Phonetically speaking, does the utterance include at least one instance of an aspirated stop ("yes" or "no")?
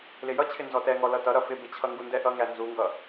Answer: yes